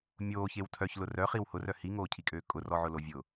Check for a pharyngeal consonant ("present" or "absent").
present